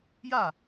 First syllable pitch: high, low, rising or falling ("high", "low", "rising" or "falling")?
falling